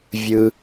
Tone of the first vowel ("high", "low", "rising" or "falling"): high